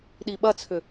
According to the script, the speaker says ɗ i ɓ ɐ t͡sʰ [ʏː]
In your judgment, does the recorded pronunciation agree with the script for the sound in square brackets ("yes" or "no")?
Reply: no